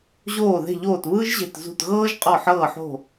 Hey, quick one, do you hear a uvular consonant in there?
yes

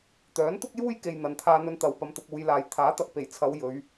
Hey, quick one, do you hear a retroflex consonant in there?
no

